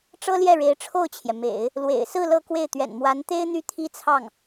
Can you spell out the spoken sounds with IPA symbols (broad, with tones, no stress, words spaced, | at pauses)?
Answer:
ʈ͡ʂɤ˥ljɛ˥˩ɻe˧˥ɪ̯ ʈ͡ʂʰo˥˩ʊ̯t͡ɕʰjɛ˩mḛ˨˩˦ɪ̯ | lwḛ˨˩ɪ̯sɹ̩˥˧ lɤ˥˧kwe˥˩ɪ̯ t̪ɥɛ̰˨˩n mwa˧˥nt̪e˥ɪ̯n̪y˥˩ t̪ʰi˥t͡sʰɑ˥˩ŋ